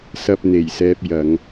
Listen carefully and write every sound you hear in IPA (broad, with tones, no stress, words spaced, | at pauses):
sɐ˧p̚n̪e˨˩jsɛː˧p̚ jɐ˨˧ŋ